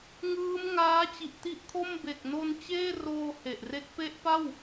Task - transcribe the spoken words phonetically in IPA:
ŋ ɯː˦˥ m ŋ aː˦˥ t͡ɕ i˨˩ ʔ t i˦˥ ʔ kʰ o˥˩ m b e˨˩ k̚ n o˧ n t͡ɕ eː˥˩ r oː˧ h e˨˩ ʔ r e˦˥ k̚ p e˦˥ ʔ p a˥˩ w

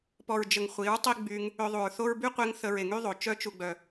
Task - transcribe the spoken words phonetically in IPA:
p ɔ˨ ɹ d͡ʒ ə˨ ŋ χʷ i˨˦ ɹ tˤ i˦ ɡ͡b y˧ ŋ | ø˧ ðˤ u˨ ɹ θ o˦ ɹ b y˦ qʷ e˧ ŋ θ ə˧ ɹ e˨ ŋ y˦ ðˤ o˨ t͡ʃ œ˧ t͡ʃ u˨ ɡ͡b œ˨

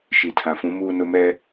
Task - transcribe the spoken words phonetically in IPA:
ʃ i˨ tʰ ã˨ f ũ˨˦ m uː˦ n ʊ˦ m ɛ˦

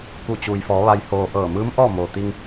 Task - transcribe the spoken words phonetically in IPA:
k u˧˩ t͡ɕ uː˩ j f ɔː˩˧ ʋ a˧ j h oː˧ ʔ ɤː˧˩ m ɯː˧˥ m ʔ ɔː˥˨ m oː˩ t̪ i˧ ŋ

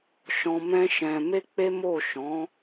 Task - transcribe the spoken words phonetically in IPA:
ʃ ɔ̃˧ m ɛ̃˦ ʃ ɛ̃˧ m e˦ k͡p e˦ m o˦˨ ʃ ɔ̃˨˦

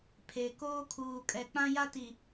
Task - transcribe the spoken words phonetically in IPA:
pʰ e˨ k oː˦ kʰ uː˨ kʼ ɛ˨ k͡p ã˦ j a˦ t i˨

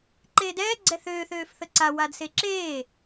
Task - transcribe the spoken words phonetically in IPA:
ǃ eː d ɛː ɡ͡ǀ ɛ θ øː θ øː f θ ə ǀ a w a d s e ǁ eː

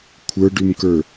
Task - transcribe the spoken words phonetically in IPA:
kʷʰ ə˞ ɖ ʉ m k ə˞

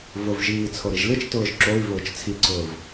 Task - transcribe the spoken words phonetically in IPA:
v ʊ v ʒ iː t͡sʰ o ɾ i ʒ l ɨ t͡ʃ t ʊː ʒ ǁ o i̯ v ʊː t͡ʃ t͡sʰ i ǀ ʊː v

